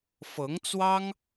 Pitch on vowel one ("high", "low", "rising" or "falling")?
rising